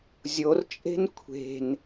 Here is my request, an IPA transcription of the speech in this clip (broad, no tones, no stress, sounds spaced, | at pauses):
zʲ o r t͡ʃʼ e̤ n kʷʰ e̤ n